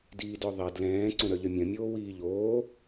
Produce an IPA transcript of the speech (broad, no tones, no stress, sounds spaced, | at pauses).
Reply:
d iː d œ ðˤ ɛ d l ɛ̃ː ǀ õ ɾ œ ʎ œ mʲ œ̃ mʲ oː w iː ʎ oː